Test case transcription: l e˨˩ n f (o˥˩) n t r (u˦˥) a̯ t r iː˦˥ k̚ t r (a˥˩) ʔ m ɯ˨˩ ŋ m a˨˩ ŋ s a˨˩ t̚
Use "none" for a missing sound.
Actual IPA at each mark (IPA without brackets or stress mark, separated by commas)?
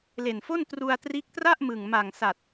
o˥˩, u˧, a˥˩